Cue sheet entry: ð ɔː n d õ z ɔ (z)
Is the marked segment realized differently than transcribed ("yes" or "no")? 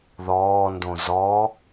yes